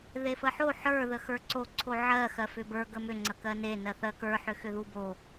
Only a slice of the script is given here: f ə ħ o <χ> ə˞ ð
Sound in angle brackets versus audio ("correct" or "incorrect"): incorrect